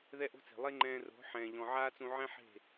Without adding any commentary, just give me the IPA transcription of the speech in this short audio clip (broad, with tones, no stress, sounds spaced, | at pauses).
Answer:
ð ɛ˦ ʔ o̤˦ t͡s e̤˨ lˠ e˦ ŋ͡ǃ ɛ̃ː˧ r o̤˨˦ ħ ɛ̃ː˨ ʎ ɔ̃˨ ʕ aː˦ t͡s ũ˧ ʕ ɛ̃˦ ħ e̤˦˨